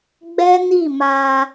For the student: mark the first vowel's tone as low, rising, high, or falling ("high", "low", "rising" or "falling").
high